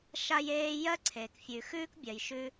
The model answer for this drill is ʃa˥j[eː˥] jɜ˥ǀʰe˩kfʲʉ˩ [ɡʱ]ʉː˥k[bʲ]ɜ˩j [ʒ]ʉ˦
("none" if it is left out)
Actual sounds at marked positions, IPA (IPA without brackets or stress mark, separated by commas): eː˥, x, bʲ, ʃ